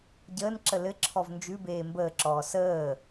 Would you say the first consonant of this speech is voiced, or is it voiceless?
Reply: voiced